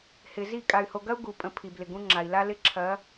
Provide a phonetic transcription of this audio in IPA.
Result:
h ɪ˨ z i˦˨ kʼ a˨ y̯ h o˨ ɡ ɐ˦ u̯ ɡ u˨ pʼ ə̃˨˦ pʰ i˨ b l ɪ˨ ɡ ũ˦ ŋ͡ǁ a˨ i̯ l a˦ l ɪ˦ ǁʰ ɐ˨˦

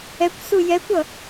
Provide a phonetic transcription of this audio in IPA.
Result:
ɛ kʷ s u j ɛ kʷ ʌ

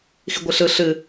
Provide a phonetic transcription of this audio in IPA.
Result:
x i ɡʷ ɨ ɬ ɯ ɬ ɨ

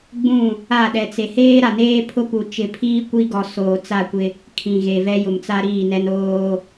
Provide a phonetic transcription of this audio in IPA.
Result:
ɡ͡b ũ˦˨ | a˦˨ ɗ ɛ˨ t͡s e˨ h eː˦ ɾ a˨ n eː˦ pʰ ʊ˦ p u˨ t͡ʃ ɪ˨ pʰ iː˦ kʷ i˦ ɡ ɔ˨ s oː˨ t͡s a˦˨ kʷ ɪ˦ | kʰ ĩ˨ ɣ e˨ v ɛ˦ j ʊ˨ m t͡s a˦ ɾ iː˦˨ n ɛ˦ n oː˦

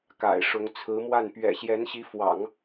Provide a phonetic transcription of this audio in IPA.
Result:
k a̰˨˩ ɪ̯ ʂ ʊ˧˥ ŋ t͡sʰ ɹ̩˧˥ m w a˥˩ n p ɥ ɛ̰˨˩ ɕ j ɛ˧˥ n ɕ i˧˥ f w ɑ̰˨˩˦ ŋ

